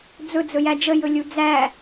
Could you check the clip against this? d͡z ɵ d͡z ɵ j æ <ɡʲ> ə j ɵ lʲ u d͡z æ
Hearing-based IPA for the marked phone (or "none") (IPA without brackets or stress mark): d͡ʒ